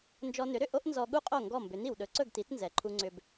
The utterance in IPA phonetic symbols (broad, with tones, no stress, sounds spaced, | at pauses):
n d͡ʒ ɔ˧ n ʏ˩˥ ɾ ʏ˥˩ ʔ o˥ ʔ n z ɔ˧ ɠ u˥ qʼ o˥˩ ŋ ɡ ɔ˥˩ m b ʏ˩˥ n i˩ w ɗ ɵ˩˥ ǀ ɵ˥˩ ɡ t i˩˥ t n z ɛ˩ ǃʰ u˧ ŋ͡ǀ ʏ˧ b